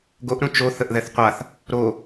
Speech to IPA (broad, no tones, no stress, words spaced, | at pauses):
ɡoʔɾũ t͡ʃo θəʔðɛθqʷaθ | ɾo